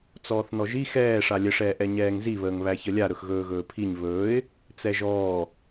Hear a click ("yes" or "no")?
no